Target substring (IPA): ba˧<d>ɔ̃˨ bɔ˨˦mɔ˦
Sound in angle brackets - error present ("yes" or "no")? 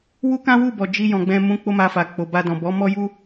no